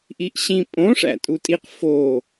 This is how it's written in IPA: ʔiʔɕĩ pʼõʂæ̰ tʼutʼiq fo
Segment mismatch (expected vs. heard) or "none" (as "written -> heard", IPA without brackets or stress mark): none